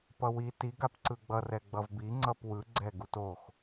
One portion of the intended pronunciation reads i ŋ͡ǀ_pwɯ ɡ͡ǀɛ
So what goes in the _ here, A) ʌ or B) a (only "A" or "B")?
A